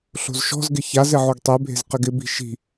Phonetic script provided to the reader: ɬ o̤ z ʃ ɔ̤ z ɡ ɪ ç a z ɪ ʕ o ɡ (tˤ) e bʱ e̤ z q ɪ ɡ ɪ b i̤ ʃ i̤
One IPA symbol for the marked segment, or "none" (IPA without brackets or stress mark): tˤ